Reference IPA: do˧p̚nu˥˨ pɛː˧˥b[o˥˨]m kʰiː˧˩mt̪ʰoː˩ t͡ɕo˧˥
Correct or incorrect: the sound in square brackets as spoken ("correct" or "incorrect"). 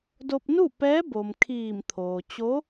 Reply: incorrect